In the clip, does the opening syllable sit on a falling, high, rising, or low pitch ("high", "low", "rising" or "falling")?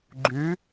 rising